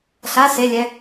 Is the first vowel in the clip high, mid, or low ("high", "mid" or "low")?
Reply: low